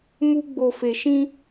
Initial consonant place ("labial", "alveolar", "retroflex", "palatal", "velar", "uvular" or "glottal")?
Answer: labial